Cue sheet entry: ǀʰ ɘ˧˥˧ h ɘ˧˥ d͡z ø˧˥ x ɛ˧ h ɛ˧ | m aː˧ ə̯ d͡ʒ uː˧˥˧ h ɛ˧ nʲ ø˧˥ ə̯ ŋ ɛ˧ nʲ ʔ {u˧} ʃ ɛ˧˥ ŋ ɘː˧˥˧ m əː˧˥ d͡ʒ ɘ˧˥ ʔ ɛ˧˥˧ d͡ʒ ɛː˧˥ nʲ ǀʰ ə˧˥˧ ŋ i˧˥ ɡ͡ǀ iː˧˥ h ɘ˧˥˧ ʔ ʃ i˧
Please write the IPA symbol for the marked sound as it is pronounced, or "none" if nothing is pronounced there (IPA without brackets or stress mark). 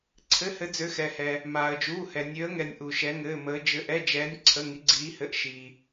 u˧